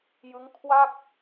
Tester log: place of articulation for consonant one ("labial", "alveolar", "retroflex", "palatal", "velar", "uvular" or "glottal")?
palatal